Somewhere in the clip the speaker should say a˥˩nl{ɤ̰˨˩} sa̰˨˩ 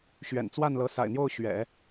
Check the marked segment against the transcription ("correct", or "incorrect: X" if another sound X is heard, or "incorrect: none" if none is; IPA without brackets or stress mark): incorrect: ɤ˧˥